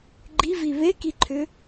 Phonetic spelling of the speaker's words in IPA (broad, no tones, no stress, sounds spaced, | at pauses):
ɡ͡ǃ i v i β e k i ǃʰ ʏ